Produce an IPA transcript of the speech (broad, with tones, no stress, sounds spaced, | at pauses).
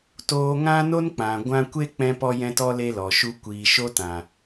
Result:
t oː˧ ŋ ã˦ n o˦ n k͡p ã˨ ɡʷ ã˧ kʷ e˦ k͡p ɛ̃˧ p ɔ˧ j ɛ̃˧ t ɔ˧ l e˧ l ɔ˨ ʃ u˧ kʷ iː˨ ʃ o˧ t ã˨